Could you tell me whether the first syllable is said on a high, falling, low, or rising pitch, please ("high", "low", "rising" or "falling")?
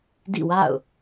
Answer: falling